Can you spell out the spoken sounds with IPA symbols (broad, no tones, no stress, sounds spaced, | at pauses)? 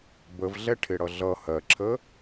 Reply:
b ə v ɮ ɛ ʈʰ ɪ ɽ ʌ ɮ ʌ h ɜ ǁʰ ə